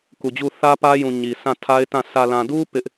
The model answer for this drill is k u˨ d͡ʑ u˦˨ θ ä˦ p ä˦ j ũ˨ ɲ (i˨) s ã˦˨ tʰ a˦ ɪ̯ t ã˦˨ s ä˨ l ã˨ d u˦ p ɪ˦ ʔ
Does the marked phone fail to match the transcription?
no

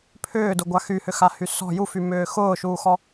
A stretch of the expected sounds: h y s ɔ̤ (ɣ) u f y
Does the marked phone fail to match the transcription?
yes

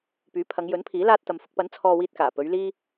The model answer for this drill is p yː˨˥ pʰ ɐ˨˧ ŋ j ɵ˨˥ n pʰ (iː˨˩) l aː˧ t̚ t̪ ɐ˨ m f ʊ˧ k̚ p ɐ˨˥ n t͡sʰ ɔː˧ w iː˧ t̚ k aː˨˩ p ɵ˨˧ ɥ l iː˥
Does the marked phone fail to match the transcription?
yes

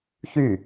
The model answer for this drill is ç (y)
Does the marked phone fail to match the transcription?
no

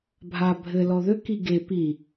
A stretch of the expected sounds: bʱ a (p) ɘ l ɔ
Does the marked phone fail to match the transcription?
yes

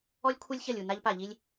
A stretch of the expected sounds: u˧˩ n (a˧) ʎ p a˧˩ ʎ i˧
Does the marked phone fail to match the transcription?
no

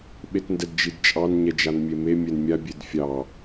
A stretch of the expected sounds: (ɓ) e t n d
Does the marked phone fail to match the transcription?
no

